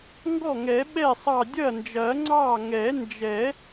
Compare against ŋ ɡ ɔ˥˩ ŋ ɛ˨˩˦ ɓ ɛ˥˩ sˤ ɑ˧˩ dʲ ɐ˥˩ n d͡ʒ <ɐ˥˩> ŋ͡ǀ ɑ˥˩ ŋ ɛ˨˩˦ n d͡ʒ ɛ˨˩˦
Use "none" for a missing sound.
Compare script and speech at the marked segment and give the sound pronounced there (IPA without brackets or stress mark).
ɐ˨˩˦